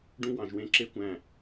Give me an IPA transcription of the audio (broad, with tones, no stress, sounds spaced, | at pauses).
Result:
ɖ ũ˥ w ɑ̃˩˧ ʒ w ẽ˥˧ ǁ e˥ kʷ æ̃˧˩